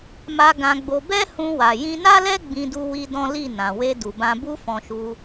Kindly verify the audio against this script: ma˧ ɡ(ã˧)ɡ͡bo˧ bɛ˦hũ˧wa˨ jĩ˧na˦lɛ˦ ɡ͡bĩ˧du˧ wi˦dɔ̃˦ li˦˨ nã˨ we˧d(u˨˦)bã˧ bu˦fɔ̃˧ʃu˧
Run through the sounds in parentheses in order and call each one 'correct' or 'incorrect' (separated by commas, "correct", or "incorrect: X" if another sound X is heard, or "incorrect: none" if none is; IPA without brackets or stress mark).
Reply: correct, incorrect: u˨